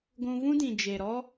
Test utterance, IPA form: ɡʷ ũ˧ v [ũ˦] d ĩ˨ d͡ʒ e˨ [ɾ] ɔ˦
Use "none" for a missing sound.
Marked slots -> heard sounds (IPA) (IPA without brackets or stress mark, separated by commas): ũ˦, ɾ